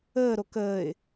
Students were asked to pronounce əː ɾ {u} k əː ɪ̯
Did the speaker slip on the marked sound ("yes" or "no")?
yes